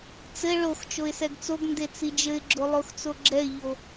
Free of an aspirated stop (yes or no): yes